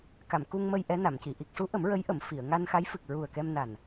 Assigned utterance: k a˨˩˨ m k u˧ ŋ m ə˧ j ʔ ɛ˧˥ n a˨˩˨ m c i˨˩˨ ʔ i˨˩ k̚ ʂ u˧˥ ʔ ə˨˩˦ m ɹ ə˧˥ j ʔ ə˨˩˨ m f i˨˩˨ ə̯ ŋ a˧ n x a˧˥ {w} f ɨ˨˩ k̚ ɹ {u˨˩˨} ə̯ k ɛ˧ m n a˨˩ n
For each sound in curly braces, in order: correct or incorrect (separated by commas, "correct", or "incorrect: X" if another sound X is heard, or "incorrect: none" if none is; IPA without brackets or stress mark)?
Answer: incorrect: j, incorrect: u˨˩